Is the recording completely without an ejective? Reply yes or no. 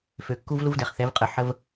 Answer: no